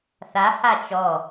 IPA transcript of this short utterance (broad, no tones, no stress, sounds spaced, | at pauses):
θ a h a t͡ʃ ɔ